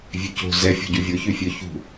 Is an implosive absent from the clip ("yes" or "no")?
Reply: yes